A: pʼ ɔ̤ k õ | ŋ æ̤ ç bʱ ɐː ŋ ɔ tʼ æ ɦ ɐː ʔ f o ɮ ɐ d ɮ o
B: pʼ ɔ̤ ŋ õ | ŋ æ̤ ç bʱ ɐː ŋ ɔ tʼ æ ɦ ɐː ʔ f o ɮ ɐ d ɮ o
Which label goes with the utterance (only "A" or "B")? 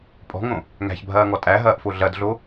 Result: B